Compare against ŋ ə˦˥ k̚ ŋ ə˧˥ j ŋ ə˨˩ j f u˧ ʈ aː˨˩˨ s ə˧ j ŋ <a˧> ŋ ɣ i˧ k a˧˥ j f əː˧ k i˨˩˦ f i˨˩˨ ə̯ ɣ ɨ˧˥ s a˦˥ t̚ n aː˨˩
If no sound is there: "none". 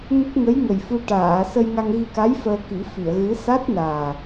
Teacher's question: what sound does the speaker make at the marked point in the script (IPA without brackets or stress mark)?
a˧